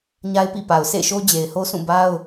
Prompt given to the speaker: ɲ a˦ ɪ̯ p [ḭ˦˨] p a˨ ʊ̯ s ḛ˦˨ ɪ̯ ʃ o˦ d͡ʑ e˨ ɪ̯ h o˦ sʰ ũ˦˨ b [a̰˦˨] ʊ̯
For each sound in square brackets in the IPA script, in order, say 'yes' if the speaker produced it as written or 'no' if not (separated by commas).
yes, no